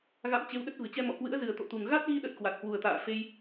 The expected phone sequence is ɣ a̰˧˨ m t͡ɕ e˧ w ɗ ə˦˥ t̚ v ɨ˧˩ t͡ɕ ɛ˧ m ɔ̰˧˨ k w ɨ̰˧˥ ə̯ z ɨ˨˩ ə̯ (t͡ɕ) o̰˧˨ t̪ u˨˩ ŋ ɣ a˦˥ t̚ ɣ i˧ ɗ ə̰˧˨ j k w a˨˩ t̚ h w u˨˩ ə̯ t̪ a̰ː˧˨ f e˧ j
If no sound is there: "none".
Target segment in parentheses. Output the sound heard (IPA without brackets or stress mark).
t̪